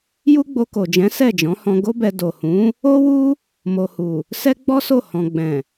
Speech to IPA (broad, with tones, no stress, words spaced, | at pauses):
ju˦ɡ͡bo˧ko˨d͡ʒɛ̃˨˦ sɛ˦˨d͡ʒɔ̃˨˦hɔ̃˧ ɡo˦bɛ˧ do˨hũ˨˦ | o˦wu˦ | mo˨hu˨ | sɛ˦ɡ͡bɔ˦so˦˨ hɔ̃˨ɡ͡bɛ̃˨